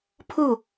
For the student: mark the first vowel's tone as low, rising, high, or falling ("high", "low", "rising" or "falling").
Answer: falling